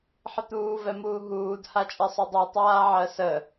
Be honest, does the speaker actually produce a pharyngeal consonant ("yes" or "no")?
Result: yes